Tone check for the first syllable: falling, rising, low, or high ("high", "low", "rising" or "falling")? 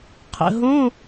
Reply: low